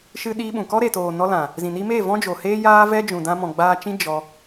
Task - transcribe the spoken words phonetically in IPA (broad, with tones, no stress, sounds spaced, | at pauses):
ʃ ɨ˧ ɗ iː˧ ɓ ũ˨ k ɔ˦ ɾ e˨ t oː˨ n ɔ˧ l ã˨ | z ĩ˨ n i˧ m eː˦˨ v ɔ̃˦ d͡ʒ o˨ h eː˦ j aː˦ v ɛ˦ d͡ʒ ũ˨ d ã˧ m ɔ̃˨ ɡ͡b aː˧ t͡ʃ ĩ˦ d͡ʒ ɔ˧